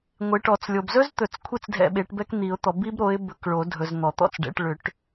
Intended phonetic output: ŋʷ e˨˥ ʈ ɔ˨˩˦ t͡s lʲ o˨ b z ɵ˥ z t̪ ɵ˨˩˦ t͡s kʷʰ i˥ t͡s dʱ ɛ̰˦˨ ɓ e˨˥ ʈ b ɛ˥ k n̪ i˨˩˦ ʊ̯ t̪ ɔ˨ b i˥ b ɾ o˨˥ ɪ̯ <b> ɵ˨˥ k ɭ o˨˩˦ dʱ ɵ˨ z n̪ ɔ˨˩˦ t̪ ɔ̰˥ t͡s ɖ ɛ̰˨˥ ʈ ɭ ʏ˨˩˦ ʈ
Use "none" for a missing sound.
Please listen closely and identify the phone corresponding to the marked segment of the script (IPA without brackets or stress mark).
b